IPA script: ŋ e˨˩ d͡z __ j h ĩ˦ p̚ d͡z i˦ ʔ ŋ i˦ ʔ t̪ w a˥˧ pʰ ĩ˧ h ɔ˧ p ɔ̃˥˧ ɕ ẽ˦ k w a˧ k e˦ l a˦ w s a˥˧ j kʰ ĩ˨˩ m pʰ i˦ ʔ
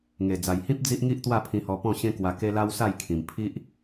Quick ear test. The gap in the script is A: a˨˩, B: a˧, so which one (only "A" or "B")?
A